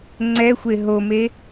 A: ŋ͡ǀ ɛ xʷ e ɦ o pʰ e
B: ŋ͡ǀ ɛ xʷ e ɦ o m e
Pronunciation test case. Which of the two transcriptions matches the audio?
B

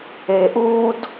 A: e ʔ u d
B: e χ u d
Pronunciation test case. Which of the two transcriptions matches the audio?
A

